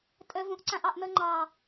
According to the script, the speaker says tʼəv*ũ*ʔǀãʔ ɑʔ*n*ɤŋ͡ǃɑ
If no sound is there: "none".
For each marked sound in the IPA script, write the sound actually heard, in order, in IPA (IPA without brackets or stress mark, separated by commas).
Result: ũ, n